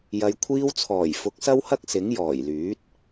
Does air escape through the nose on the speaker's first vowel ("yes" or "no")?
no